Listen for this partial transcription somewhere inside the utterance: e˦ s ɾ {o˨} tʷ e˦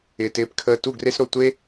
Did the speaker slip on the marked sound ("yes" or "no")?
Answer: yes